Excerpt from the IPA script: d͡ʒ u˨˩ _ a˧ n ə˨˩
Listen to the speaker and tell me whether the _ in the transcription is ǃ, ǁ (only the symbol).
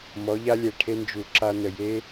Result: ǁ